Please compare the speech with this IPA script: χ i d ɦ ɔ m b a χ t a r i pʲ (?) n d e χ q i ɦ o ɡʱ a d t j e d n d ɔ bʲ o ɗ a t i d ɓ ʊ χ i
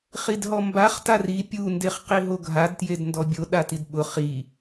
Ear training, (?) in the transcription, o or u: u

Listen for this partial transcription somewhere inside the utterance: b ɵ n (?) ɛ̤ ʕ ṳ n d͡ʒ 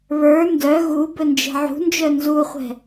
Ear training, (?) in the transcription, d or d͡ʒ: d͡ʒ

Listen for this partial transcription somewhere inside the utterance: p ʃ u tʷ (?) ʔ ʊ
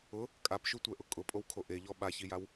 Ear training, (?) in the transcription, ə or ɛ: ɛ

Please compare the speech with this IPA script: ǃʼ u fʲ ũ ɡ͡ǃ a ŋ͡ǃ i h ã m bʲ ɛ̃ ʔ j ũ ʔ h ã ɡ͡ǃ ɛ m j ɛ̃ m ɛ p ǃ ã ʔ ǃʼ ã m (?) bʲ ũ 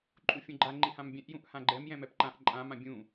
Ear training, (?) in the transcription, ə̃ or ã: ã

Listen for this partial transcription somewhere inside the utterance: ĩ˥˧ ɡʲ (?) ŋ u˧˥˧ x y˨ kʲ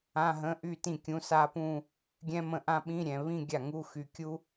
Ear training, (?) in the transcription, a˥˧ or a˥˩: a˥˩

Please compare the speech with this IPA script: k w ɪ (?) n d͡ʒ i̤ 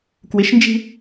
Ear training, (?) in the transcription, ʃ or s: ʃ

